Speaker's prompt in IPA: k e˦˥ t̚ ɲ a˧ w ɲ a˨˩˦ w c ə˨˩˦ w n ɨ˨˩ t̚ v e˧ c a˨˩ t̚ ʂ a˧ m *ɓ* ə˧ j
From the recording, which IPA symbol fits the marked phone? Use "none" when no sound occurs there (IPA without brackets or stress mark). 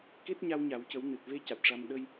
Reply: ɗ